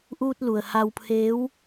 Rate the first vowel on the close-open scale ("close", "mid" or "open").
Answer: close